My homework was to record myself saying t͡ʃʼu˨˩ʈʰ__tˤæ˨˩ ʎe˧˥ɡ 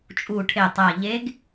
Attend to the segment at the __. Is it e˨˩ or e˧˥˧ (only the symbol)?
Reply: e˨˩